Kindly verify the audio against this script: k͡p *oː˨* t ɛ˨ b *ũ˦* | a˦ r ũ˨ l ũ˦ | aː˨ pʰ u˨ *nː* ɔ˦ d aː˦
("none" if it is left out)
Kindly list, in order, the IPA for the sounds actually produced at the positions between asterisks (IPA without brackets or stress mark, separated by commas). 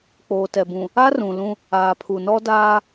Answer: oː˨, ũ˨, n